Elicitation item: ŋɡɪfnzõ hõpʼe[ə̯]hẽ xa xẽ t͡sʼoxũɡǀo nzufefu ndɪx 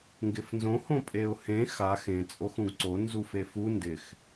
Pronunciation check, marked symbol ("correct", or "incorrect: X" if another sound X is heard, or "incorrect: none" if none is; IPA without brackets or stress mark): incorrect: ʊ̯